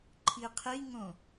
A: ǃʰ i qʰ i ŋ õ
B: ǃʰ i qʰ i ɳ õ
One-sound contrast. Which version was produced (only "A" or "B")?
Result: A